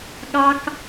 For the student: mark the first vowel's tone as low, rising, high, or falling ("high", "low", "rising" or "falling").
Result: high